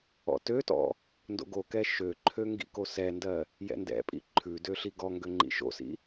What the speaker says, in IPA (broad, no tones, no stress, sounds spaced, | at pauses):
ɔ̰ t ø t ɔ̰ | n d o̰ ɡ o k ɛ ʃ ø ǃʰ ø ŋ ɡ ḭ k o s ɛ n d ɜ | j ɛ̰ n d ɛ̰ pʼ ḭ ǃʰ ʉ d ø ɬ i ɡ ɔ ŋ ɡ ø ŋ͡ǃ ḭ ʃ o̰ s ḭ